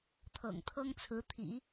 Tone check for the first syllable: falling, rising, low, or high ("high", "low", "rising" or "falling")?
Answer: low